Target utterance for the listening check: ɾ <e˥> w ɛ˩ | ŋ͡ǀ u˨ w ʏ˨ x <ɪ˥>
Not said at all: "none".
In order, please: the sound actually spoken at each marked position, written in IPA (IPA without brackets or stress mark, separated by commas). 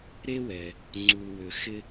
e˥, ɪ˥